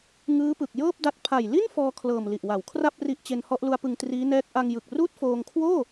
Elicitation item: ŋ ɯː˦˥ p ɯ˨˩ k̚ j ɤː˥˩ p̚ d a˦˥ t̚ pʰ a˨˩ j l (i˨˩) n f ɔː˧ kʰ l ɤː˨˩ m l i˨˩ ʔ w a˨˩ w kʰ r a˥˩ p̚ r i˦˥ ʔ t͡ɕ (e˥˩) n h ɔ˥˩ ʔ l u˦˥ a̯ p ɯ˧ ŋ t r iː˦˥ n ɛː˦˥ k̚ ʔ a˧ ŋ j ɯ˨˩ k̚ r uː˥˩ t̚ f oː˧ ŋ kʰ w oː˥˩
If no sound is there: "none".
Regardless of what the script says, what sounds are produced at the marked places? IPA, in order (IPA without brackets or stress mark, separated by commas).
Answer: i˥˩, e˧